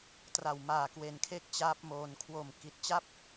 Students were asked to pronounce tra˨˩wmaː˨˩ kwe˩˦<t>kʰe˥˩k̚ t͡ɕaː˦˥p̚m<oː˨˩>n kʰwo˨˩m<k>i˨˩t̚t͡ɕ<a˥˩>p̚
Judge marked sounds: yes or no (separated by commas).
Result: no, no, yes, yes